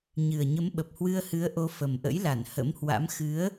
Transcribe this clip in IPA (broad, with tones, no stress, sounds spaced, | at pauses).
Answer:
ɲ ɨ˨˩ ə̯ ɲ ə˨˦ m ɓ ə˨˩ p̚ h w ɨ˧ ə̯ h ɨ˨˦ ə̯ ʔ o˨˦ f ə˨˩ m ʔ ə̰˧˥ j l a˧˩ n h ə̰˧˥ m h w a̰˧˥ m x ɨ˨˦ ə̯